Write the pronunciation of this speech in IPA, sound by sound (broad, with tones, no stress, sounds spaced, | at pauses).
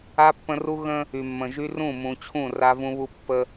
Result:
a˦ pː ə̃˦ r u˦ ɣ ə̃˦ | y˨ mː ə̃˨ ʒ y˦ r ũ˦˨ m ũ˨ t͡ɕʰ ũ˦˨ r a˦ v ũ˦ β u˦ pː ə˦